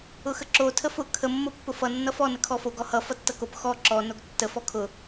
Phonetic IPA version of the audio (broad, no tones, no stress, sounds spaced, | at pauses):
ʊ x ə ǁ o tʰ ə f ʊ kʰ ə mː o pː ʊ f ʌ nː ʌ f ɔ n ə kʰ ɔ f o ɡ ɔ h ʌ f ʌ tː ʌ k o p x ɔ ǁ ɔ n o ɡ tː ə f ɔ kʰ ʊ